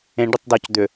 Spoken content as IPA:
ẽ ɖ ʏ tˤ d ɔ c d̪ ʏ

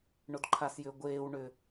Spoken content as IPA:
ɳ o d ǃʰ a s j ʏː ɡʷ eː w ɳ ʏː

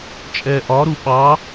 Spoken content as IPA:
t͡ʃʼ ɛ ʔ ɒ ɾ u ɓ ɑ

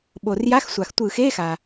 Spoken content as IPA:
ɓ o˩ r j a˧˥˧ x sʷ a˩ x tʷ ɯ˧˩˧ x e˧˥˧ x a˩

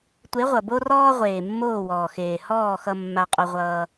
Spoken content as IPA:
tʷ e˨˦ ʁʷ ʌ˨ b o˦ r ɔː˦ ʁʷ eː˨ mː oː˦˨ w ɔː˨ x eː˨ h ɔː˦˨ x ʌ˧ mː a˧ qʼ o˧ ʁʷ ʌː˧

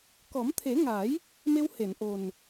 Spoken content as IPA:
k ɔ˨˩˦ m t̪ʰ e˨˩˦ ŋ a˨˩˦ j | m e˧ w h e˨˩˨ n ʔ o˨˩ n

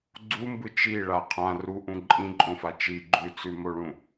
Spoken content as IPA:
ɡ͡ǀ u m b ɯ t͡ʃ i ɭ a qʰ ã r u ʔ ũ ǃʼ ĩ ǃʼ õ f a t͡ʃ i ɡ͡ǃ ʉ t͡s ʉ m o ɭ ũ

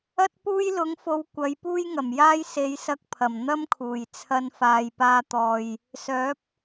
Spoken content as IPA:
ɐ˥ t̚ p uː˥ j l ʊ˨˥ ŋ f o˨˧ w kʷ ɐ˨˥ j p uː˥ j ŋ ɐ˨˩ m j aː˥ j s e˨˧ j s ɐ˧ k̚ pʰ ɐ˨˩ m n̪ ɐ˥ m kʰ uː˨˩ j t͡sʰ ɐ˧ n f aː˨ j p aː˧ t̪ ɔː˨ j | s œː˨˥ p̚

